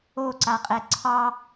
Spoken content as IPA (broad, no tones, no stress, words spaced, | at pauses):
oǀaqʼɛ ǀʰɑ